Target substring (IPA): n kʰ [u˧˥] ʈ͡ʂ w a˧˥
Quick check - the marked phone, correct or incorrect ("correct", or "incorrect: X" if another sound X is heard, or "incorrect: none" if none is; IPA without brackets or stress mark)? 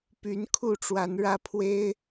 incorrect: u˥˩